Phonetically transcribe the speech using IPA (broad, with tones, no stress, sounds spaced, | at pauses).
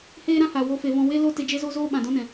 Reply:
h eː˦ ɾ ã˦ h a˨ w o˦ f e˧ v ɔ̃˦ w e˦ l o˦ t e˧ d͡ʒ e˦ z o˦ z oː˦ ɓ ã˨ d ɔ̃˦ n ɛ̃˨